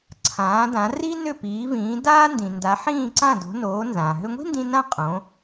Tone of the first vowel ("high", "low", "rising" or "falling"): rising